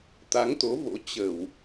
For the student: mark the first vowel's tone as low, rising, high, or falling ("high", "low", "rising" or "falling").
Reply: rising